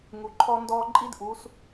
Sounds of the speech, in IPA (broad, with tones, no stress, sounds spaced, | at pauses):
ŋ u˩ ǃʰ ɔ˧ n d ɔː˧ ǃʼ i˧˥ d ʔ u˩˧ s